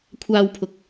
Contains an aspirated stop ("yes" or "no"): yes